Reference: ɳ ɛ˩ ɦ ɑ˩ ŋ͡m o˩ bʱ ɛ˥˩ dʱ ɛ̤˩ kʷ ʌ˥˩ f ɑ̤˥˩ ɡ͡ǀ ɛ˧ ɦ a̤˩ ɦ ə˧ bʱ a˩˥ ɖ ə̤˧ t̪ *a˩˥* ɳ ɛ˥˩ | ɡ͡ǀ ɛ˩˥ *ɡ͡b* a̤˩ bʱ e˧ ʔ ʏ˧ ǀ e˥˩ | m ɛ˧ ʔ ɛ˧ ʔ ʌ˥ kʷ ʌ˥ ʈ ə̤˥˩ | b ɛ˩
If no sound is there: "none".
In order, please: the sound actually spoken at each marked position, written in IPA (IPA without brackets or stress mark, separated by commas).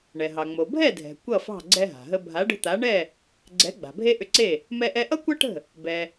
a˩˥, ɡ͡b